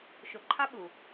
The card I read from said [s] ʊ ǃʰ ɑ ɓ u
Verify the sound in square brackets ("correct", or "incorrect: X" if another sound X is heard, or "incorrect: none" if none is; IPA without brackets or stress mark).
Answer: incorrect: ʃ